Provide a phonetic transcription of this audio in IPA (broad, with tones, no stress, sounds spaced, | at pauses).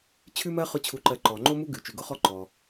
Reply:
t͡ɕʰ ʉ˥ m ɜ˥ χ ʊ˥ t͡ɕʰ u˧ ǃ ɜ˧ ǃ ɔ˩ ŋ͡ǃ o˥ m u˥ ɡ ʉ˩ t͡ʃ ʉ˩ ɡ ʊ˥ χ ɔ˥ ǃ ɔ˩